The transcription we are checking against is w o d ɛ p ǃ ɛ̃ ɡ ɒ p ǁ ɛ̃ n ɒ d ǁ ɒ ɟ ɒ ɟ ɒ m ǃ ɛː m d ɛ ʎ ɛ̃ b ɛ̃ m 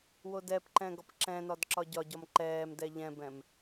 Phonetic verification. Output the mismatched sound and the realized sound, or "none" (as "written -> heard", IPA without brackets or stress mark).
none